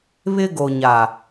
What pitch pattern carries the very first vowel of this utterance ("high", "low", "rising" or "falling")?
high